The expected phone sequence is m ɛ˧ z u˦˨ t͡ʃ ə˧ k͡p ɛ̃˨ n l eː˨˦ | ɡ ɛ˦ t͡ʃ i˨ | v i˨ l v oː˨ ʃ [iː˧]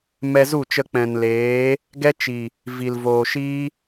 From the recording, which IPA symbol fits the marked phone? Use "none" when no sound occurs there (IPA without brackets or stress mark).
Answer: iː˦